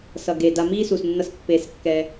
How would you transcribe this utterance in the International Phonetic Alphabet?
sʌ˩ɡe˩ da˨ miː˦su˩snːʌ˨s pːe˩skːɛ˩

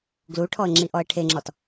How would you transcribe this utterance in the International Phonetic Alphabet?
ɡluʈʰɔə̯ ŋ͡ǁiʔɔə̯ʈʰeŋ͡ǁɔt

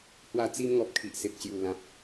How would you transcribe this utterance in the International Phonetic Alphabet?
hwa˧t͡si˧mŋɔ˨p̚ kʰi˨ʔse˨p̚ɕju˨˩ lã˨p̚

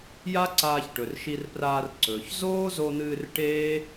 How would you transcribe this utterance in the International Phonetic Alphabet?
ja˦ ǀaː˧çʈɵ˨rʃi˧rpraː˧r ǀɵː˨ç zoː˦zo˧n̪ɨː˧r ʈeː˦

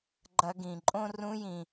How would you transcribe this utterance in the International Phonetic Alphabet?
ɡ͡ǃɐ˦ɡĩ˧ ǃʼõ˧ rũ˦jĩ˧

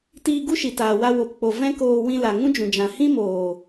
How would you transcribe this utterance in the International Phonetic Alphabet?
tiː˧ɡu˦ʃi˨taː˨ wa˦wo˧pk͡po˧ vɛ̃˦koː˧ wĩ˧la˨ ŋũ˦d͡ʒũ˨d͡ʒã˨ hĩ˦moː˨

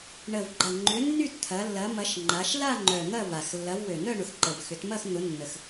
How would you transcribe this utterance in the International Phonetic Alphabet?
ɳə˨˩vɡ͡ǃɐ˨˩ ŋ͡ǃʏ˨˦ nːy˥˧tt̪ʰɐ˨˦ lːɐ˨˦ mɐ˨˦ʃ ŋ͡ǃa˨˦ʃ la˥˧ŋ͡ǃœ˨˩ n̪ɐ˥˧va˨˩x lːɐ˨˦vwø˨˩n̪œ˥˧ ɳʊ˨˩xǃə˨˩vxʏ˨˦t mɐ˥˧xn̪ʊ˨˦ nːə˨˩x

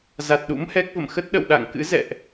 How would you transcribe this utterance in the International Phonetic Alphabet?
za˨˩t̚ɗṵ˧˥mhɛ˦˥k̚və̰˧˨m xə˦˥t̚ɗə̰˧˨wɗa̰˧˨ŋkɨ̰˧˥ zɛ̰˧˨ʔ

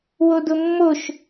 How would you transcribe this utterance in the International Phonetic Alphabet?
wodʊmːoʃ

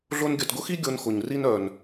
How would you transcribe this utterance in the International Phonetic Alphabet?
ɮʊ˧n ɡʲœ˨tɡʊ˦xi˦ ɡʲo˧nxʊ˨ɲri˦n œ˨n

